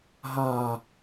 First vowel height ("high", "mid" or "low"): low